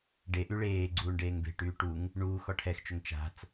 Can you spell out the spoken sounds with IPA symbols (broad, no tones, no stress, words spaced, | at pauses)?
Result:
ɖeʔy ɭeːɡ͡ǀuːɳ ɖeːŋbe̤ʈyː ʈuŋ | ɳuːx ɔʈʰɛxt͡ʃʏŋ t͡ʃa̤t͡s